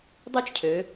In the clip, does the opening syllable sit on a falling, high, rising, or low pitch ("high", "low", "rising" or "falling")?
high